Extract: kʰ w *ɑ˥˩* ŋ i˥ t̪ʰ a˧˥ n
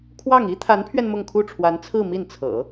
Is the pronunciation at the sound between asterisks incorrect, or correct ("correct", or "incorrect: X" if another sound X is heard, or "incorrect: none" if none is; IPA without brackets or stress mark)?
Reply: correct